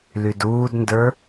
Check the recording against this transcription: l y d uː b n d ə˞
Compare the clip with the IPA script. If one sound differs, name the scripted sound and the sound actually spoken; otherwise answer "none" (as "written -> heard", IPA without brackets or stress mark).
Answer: b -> d